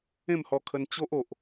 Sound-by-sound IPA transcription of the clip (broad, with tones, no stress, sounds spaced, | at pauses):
ẽ˥˧ m h ɔ˧ kʰ ə˧ n t͡ɕ o˦ ʔ o˨ ʔ